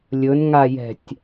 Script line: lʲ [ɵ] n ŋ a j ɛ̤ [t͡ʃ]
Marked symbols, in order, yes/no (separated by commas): yes, no